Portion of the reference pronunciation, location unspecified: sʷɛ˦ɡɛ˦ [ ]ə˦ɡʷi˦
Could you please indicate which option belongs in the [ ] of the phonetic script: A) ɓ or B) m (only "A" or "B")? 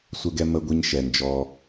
B